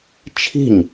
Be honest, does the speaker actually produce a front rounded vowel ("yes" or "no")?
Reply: no